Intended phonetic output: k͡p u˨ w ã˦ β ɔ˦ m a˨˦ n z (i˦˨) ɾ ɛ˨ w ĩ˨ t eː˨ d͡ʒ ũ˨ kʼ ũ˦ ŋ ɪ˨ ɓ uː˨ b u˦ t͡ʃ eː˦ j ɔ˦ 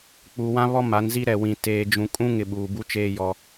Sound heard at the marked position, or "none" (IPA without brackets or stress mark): i˦